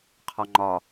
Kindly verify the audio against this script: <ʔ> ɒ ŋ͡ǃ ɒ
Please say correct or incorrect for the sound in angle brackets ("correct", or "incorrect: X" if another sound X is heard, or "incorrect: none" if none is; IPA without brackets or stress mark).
incorrect: qʰ